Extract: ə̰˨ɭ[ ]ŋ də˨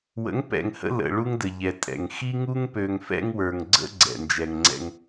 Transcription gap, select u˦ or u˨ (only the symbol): u˦